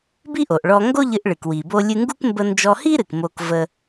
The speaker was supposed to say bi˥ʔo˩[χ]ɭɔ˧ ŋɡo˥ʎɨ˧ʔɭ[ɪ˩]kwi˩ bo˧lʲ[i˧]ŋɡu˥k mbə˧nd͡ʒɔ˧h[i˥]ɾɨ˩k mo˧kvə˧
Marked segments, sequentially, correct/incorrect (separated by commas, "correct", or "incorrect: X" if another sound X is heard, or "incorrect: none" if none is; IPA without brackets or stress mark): incorrect: ʔ, incorrect: ɨ˩, incorrect: ɨ˧, correct